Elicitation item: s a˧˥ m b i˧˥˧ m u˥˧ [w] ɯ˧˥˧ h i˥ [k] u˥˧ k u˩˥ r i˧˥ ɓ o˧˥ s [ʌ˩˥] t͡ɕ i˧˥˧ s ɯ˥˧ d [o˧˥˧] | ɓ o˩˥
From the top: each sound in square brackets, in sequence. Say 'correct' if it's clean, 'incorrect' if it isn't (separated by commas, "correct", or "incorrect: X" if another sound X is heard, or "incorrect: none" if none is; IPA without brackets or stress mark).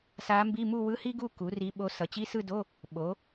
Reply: correct, incorrect: ɡ, correct, correct